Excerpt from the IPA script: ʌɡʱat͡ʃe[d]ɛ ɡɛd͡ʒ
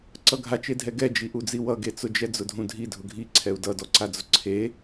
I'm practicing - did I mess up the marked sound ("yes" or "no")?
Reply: yes